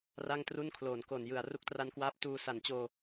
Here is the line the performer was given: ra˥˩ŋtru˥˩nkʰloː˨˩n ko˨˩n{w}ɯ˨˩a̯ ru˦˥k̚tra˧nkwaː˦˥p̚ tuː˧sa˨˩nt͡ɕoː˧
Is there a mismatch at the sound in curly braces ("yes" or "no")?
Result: yes